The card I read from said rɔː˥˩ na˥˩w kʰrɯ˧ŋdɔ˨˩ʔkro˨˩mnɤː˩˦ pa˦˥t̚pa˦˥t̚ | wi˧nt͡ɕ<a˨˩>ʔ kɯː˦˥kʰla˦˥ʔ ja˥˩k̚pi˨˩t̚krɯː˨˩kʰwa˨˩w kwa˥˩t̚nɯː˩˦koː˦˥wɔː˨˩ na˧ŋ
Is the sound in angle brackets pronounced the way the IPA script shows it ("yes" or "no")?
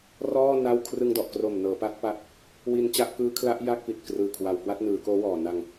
no